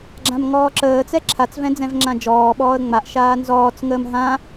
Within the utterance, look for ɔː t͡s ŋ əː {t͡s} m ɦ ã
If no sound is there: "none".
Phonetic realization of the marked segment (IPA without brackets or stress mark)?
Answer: none